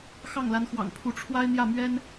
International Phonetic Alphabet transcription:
x ɑ˥˩ ŋ l a˧˥ n x w ɑ̰˨˩ ŋ pʰ u˧˥ ʈ͡ʂʰ w a˥ ɪ̯ n̪ j ä˥˩ m ɥ ɛ˥ n

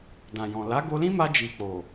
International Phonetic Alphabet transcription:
d ã˨ j ɔ̃˨ l a˨˦ ɡ o˧ l ĩ˦ m a˧ d͡ʒ i˨ k͡p o˨

